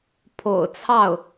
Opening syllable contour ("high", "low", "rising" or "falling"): low